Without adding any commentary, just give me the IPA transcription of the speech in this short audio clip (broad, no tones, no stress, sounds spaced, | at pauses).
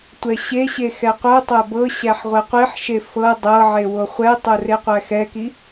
tʷ ɛ ɕ e ɕ e x ɛ qʷ ɤ tˤ æ b ɤ ɕ æ ħ ʁʷ ɛ qʷ i ħ ʃ e f ɤ dˤ ɤ ʕ e w o χʷ ɛ tˤ o r e qʷ æ x ɛ k i